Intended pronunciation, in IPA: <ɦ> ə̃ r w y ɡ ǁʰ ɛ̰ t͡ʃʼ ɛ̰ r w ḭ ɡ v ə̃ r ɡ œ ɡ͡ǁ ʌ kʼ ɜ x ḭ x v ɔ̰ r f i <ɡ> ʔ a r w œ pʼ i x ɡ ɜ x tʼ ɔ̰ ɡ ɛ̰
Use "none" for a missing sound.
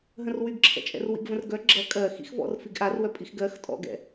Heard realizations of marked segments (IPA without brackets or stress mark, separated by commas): ɦ, ɡ